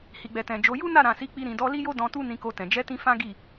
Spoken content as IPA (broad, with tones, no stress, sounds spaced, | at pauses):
h i˨ ɡ͡b ɛ˨ t ɛ̃˨ d͡ʒ o˨˦ j u˦ n a˦˨ ɾ ã˨ s i˨˦ k͡p i˧ ɾ ĩ˨ d ɔ˧ l i˦ j o˦ d ɔ̃˧ t u˦ n ĩ˧ k o˧ t ɛ̃˨ d͡ʒ ɛ˨˦ t ĩ˧ f ã˦ ɡ i˦˨